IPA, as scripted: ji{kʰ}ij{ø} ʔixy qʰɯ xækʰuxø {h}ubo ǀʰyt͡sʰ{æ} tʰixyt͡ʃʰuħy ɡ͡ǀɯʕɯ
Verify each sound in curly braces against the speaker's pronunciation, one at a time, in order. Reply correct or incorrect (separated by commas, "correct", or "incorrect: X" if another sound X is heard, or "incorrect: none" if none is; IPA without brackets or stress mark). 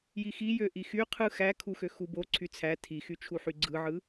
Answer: incorrect: x, correct, incorrect: x, correct